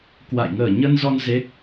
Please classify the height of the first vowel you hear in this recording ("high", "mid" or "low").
low